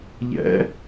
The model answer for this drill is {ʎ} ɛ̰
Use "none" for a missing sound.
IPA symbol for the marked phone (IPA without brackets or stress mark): ʎ